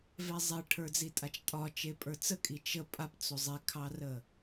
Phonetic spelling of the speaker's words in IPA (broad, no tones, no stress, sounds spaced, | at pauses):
v ɛ zˤ e ʈʰ ə˞ d͡z i tʼ a t͡ʃ tʼ ɒ t͡ʃ e pʼ ə˞ t͡s ə kʼ i t͡ʃ ə pʼ a p t͡s o zˤ e kʰ ɑ r ə